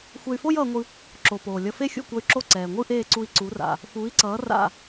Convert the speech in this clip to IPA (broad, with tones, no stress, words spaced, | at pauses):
xʷe˧y̯fo˥jʌː˧ŋʷɯ˧ | ǁo˩ poː˩lʲʌ˧ fe˥xʲṵ˥˩kʷʌ˧y̯ǁo˥˩ ǀɛː˩ŋʷɯ˥ʔeː˥˩ǀu˧i̯ ǀu˩˥ra̰˩ | fuː˩˥i̯ǀʌː˩˥ ra̰˥˩